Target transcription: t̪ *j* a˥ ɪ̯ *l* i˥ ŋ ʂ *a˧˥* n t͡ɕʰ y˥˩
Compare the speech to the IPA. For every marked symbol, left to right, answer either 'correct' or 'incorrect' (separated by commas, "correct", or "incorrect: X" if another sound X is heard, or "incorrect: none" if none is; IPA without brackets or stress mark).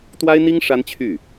incorrect: w, incorrect: n̪, incorrect: a˥